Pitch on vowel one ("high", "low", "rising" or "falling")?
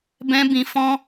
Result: high